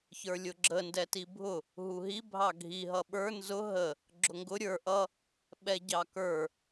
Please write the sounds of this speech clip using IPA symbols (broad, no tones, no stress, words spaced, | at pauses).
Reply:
çə˞lʲʊɡ͡ǁə ndɛtibʱʊ | ɦuɦi bʱɑɡʱi ɦʌɓə˞ nzʊ ɦə | ɡ͡ǁʊŋɡʊ ɾʲə˞ ʔʌ | ɓɛɟɑkə˞